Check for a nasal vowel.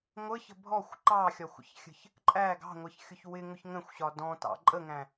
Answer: present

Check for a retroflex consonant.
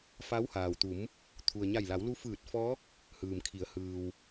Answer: absent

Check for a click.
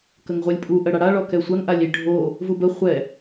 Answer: absent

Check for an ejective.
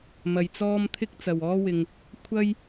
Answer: absent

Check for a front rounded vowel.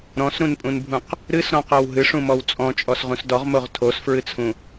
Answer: absent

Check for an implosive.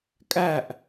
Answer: absent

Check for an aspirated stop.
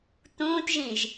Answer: absent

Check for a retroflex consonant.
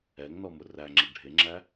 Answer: present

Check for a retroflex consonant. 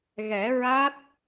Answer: absent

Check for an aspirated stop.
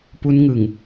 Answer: absent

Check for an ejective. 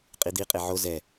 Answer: present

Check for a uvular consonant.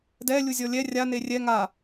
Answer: absent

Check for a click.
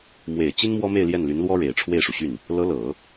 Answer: absent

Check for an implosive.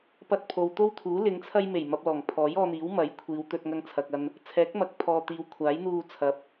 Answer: absent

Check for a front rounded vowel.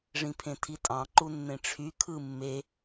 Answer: present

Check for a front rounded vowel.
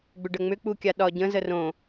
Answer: present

